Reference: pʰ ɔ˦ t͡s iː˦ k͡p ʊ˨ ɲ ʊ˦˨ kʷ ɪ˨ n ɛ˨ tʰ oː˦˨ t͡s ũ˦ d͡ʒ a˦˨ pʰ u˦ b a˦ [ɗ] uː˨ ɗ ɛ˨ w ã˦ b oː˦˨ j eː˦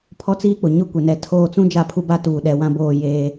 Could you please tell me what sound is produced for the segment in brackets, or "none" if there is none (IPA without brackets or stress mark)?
t